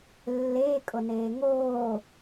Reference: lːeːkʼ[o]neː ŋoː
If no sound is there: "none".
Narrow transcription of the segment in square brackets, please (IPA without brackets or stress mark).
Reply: o